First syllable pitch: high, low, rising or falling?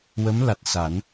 rising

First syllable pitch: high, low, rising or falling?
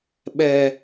high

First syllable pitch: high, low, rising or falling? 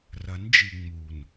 rising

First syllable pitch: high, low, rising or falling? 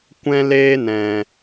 high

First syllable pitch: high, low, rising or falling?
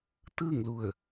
falling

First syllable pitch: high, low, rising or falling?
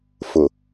low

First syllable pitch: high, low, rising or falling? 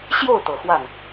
falling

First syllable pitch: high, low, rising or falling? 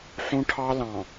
high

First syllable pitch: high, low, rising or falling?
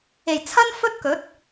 low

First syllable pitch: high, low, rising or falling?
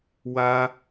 high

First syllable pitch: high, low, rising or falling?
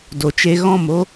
low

